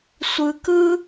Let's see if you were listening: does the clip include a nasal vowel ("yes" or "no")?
no